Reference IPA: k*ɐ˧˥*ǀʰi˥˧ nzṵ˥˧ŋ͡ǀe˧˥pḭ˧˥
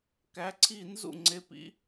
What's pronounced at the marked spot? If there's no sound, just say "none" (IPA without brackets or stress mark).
æ˧˥